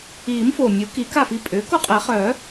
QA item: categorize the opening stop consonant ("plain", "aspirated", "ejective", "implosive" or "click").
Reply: plain